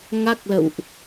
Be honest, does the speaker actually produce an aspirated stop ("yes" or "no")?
no